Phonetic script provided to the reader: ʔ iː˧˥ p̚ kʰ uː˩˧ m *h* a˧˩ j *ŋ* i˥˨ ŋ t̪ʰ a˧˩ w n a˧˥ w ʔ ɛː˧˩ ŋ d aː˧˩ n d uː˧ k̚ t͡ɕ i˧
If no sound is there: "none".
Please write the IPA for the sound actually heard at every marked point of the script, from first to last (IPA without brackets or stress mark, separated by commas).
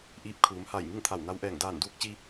h, ŋ